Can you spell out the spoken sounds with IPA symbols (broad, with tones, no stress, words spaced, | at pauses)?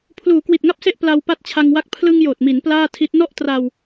pʰluː˩˦kwi˨˩t̚ŋa˥˩p̚se˥˩ʔ pla˧w pa˥˩t̚t͡ɕʰa˧ŋwa˥˩k̚ pʰlɯ˧ŋ joː˨˩t̚mi˩˦n plaː˥˩tʰi˦˥t̚ nɔ˥˩ʔtra˧w